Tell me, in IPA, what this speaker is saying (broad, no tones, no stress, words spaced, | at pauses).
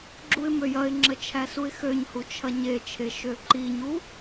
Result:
ɡ͡ǁuɪ̯møjɐɪ̯ŋ͡ǁə t͡ʃʰæsuɪ̯xøɲhu t͡ʃʰɐɲet͡ʃʰe ʃøǃiɲu